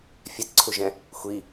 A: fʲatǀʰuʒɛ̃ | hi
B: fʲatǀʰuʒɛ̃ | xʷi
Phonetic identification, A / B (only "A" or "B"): B